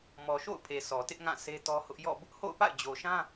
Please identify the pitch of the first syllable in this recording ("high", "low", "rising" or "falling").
low